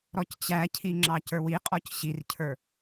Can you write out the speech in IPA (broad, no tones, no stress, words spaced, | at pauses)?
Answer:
ɾɔct͡ɕæcʰi ŋ͡ǁɑcə˞wiqʼɔc ɕircʰə˞